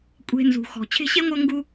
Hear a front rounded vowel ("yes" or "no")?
no